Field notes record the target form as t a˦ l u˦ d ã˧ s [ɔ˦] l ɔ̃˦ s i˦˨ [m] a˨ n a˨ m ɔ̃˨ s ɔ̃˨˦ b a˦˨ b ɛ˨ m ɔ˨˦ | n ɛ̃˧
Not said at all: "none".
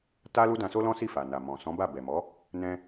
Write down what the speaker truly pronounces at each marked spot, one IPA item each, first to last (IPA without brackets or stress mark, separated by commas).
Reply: o˦, f